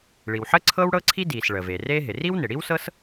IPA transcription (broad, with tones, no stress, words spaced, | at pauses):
ɭi˩wħəː˥ ǀʰɤː˥wɽɤ˥ǀʰi˥ diː˩s ɭəː˩veː˩ reː˥ɦɪ˩ ri˥w nɪ˩ɽi˥wsɤ˥s